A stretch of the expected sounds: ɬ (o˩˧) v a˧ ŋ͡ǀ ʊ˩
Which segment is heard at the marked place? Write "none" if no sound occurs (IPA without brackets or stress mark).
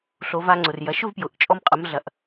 o˩˧